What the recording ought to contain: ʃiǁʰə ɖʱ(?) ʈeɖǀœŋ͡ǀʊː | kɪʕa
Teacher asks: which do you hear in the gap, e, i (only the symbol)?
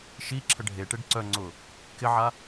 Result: e